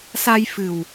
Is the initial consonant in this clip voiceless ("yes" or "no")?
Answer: yes